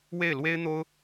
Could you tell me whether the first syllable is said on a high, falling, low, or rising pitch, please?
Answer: falling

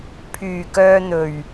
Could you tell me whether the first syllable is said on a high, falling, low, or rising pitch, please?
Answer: low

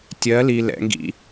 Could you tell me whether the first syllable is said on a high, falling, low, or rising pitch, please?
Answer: rising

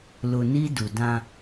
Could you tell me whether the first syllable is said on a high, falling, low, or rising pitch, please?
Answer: low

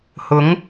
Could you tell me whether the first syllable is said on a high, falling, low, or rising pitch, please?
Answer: rising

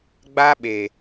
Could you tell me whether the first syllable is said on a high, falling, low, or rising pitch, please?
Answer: high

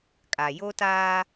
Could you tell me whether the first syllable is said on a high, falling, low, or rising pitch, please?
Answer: low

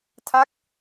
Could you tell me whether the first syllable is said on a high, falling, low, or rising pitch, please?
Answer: falling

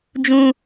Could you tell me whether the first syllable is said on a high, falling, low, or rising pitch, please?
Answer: high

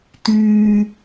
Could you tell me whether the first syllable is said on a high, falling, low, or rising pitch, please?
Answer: high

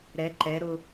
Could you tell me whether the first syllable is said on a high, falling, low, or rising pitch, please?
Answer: rising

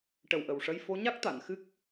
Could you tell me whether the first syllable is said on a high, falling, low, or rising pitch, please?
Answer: low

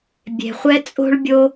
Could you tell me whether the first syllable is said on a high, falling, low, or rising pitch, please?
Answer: low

